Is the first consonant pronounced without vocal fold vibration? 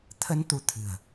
yes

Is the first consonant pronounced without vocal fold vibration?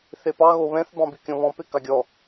yes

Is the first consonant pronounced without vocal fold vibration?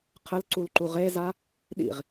yes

